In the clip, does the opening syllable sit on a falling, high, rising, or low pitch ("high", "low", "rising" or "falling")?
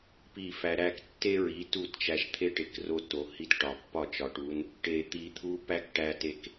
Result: falling